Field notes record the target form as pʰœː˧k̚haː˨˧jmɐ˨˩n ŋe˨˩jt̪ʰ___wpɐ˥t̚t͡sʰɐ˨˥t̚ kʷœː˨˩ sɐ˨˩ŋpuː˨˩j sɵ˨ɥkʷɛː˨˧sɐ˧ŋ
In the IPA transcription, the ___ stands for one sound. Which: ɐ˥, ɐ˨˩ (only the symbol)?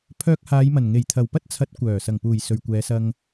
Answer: ɐ˨˩